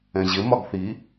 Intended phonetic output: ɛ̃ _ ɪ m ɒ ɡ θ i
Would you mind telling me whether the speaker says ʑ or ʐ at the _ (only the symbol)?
ʑ